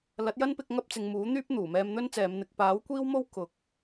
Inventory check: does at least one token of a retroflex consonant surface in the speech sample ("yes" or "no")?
no